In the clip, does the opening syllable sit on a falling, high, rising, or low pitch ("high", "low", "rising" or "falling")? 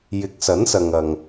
rising